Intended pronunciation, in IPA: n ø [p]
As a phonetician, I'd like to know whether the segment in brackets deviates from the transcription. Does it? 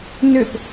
no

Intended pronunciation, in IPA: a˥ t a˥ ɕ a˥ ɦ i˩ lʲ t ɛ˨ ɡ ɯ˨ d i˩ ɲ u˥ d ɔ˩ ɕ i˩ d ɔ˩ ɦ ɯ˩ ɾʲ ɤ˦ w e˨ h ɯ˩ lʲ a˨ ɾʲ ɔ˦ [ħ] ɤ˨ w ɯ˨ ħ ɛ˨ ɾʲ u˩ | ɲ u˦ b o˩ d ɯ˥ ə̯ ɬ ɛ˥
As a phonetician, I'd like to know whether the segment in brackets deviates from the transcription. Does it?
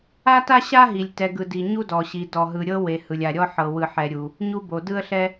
no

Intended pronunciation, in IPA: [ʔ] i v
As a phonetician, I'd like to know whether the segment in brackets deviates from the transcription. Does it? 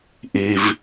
no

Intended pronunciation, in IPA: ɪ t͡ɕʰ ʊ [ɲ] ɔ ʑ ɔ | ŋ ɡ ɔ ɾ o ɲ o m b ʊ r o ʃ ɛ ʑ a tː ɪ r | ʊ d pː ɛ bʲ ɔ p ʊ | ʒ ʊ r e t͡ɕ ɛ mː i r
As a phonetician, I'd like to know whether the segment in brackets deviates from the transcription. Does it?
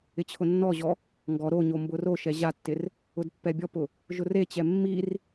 yes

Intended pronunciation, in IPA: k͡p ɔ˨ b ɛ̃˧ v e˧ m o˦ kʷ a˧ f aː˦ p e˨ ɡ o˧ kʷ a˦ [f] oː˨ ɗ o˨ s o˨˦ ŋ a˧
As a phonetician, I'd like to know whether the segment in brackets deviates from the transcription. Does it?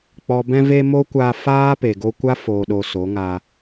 no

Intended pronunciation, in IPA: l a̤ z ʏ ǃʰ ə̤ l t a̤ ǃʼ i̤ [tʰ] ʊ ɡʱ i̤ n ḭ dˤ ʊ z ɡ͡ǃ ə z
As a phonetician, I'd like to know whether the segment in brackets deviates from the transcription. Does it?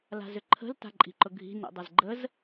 yes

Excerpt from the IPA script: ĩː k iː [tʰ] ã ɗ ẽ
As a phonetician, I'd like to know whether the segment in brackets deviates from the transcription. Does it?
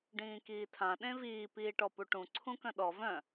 no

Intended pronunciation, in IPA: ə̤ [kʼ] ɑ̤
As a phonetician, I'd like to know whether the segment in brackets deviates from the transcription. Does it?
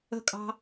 no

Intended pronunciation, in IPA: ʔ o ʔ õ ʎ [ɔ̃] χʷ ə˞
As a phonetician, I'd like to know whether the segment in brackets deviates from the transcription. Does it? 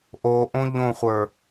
yes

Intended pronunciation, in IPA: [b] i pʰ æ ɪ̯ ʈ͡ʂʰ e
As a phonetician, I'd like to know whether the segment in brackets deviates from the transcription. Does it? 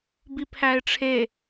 no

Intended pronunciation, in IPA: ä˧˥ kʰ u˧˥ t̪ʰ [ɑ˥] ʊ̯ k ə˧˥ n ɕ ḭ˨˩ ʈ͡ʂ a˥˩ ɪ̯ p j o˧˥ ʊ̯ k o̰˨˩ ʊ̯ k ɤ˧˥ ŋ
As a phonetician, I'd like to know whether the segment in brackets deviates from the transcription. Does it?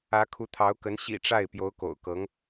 yes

